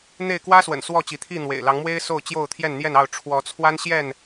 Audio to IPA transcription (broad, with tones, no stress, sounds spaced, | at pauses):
n̪ e˥˨ ɪ̯ k w ä˦ s w ə̰˨˩ n s w ɔ˥˨ t͡ɕ i˨˦ t̪ʰ i˥˨ n̪ w ḛ˨˩ ɪ̯ l ɑ˨˦ ŋ m w e˦ ɪ̯ s o˥˨ ʊ̯ t͡ɕ j o˥˨ ʊ̯ t̪ʰ j ɛ˥˨ n n̪ j ɛ˥˨ n ɑ˥˨ ʊ̯ ʈ͡ʂʰ w ɔ˨˦ t͡sʰ w a˦ n ɕ j ɛ˥˨ n